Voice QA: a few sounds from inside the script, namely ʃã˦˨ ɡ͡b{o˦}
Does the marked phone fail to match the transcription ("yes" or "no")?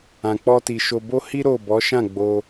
yes